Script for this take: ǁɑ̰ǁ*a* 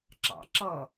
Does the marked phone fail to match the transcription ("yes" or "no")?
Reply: yes